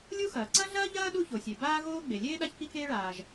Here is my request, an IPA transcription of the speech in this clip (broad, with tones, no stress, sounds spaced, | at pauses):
lʲ u˥ x ɐː˩ ǀ ɐ˥ ɮ ɐː˥ ʎ ɐː˥ ɗ u˥ ç o˩ sʲ e˩ b aː˥ ɣ oː˥ ɡ͡b e˩ lʲ eː˥ ɗ a˥ ç k i˥ k eː˥ ɭ aː˩ ʒ